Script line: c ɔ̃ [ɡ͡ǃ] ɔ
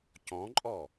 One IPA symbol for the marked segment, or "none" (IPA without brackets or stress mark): ǃʼ